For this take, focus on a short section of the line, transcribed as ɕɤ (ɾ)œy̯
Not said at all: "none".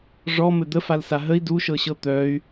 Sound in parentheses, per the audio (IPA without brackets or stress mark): t̪